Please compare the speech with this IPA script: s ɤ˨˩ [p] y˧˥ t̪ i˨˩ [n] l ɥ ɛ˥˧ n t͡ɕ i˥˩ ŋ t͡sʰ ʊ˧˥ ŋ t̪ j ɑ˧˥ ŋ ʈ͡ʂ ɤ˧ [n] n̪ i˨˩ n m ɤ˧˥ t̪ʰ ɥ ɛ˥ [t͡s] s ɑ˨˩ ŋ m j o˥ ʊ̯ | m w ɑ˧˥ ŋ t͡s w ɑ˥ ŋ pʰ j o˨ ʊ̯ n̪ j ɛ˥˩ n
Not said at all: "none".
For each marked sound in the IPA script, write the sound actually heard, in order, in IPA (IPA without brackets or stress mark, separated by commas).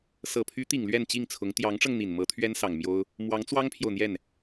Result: pʰ, ŋ, ŋ, n